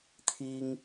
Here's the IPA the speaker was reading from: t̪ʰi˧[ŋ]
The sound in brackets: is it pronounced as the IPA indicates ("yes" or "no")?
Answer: yes